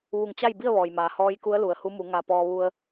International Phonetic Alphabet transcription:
ʋ u˧˩ ŋ t͡ɕ a˥˨ j b i˥˨ ə̯ ʋ ɔː˩ j m aː˩ h ɔː˧˥ j k u˧˥ ə̯ l u˩ ə̯ h u˧˥ m u˩˧ ŋ a˧ p ɔː˧ ʋ u˧ ə̯

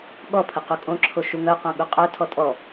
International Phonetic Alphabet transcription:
ɠ ɔ pʰ ə q u kʼ õ ǁʰ o ʃ u ŋ œ q õ ɠ u qʼ œ tʰ ɔ tʼ ɔ

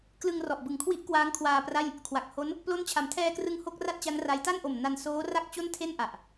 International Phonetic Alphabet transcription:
k l ɯ˧ ŋ r ɔ˨˩ ʔ b ɯ˨˩ ŋ kʰ w i˦˥ ʔ k w aː˦˥ ŋ kʰ w aː˧ p r a˥˩ j | kʰ w a˨˩ k̚ h o˦˥ n | p l o˦˥ n t͡ɕʰ a˩˦ m tʰ ɛː˧ k r ɯ˧ ŋ h o˥˩ k̚ r a˥˩ t̚ t͡ɕ a˦˥ n r a˦˥ j t a˥˩ n ʔ o˨˩ m n a˧ n s oː˦˥ r a˥˩ k̚ t͡ɕ o˥˩ n tʰ e˥˩ n ʔ a˨˩ ʔ

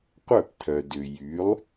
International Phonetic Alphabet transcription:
qʷ œ˥˩ p tʰ œ˩ d ʏ˩ j y˩˥ lˠ

